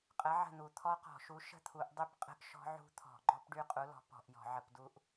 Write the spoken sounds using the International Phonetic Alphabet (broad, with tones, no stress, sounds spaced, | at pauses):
qʼ ə˨˥ ʕ ə̤˥˩ n̪ u˧˩˧ t̪ʰ ɔ˦˥ q ɔ̤˧˩˧ ʃ u˨˥ ʃ ə̤˥˩ t̪ʰ u˧˩˧ ʔ dˤ y˥˩ p qʼ ə̤˦˥ ʔ ʃ ɔ̤˦˥ ʕ ṳ˦˥ t̪ʰ ɔ̤˧˩˧ ɡ͡ǃ ɔ˦˥ p ɖ y˦˥ qʼ u˨˥ l ɔ̤˨˥ p ɔ̤˧˩˧ ʔ j ɔ̤˧˩˧ ʕ ə˧˩˧ p d u˦˥ ʔ